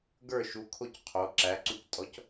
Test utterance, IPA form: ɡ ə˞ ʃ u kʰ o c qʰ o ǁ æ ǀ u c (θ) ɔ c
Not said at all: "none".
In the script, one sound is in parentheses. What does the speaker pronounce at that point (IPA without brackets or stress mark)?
tʼ